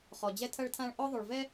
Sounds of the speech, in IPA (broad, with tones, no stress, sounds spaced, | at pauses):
χ ɔ˨ d͡ʑ ɛ˦ tʰ ɐ˦ ɭ tʰ ã˦ ɭ ʔ ɔ˦ ðˤ o˨ ɭ v ɛ˦